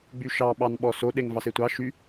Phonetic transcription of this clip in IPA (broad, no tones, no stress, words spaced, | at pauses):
ɡ͡byʃɑ ɓɑnɓɔso ɗeŋvɑsetʷɑ ʃy